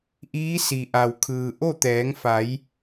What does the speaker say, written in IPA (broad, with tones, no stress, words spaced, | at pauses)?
ʔiː˧˥si˩ʔa˩wkʰɯː˩ ʔo˥˨t̪ɛː˩˧ŋfa˩˧j